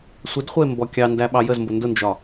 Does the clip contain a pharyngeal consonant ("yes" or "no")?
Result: no